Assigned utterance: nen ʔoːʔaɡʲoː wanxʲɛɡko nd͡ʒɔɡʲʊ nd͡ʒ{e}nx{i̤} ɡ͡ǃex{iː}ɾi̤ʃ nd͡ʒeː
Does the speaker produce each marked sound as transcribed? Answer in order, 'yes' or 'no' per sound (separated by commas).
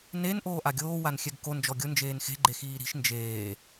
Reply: no, no, yes